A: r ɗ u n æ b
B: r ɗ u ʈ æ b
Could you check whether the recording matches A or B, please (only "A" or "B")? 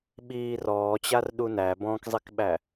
A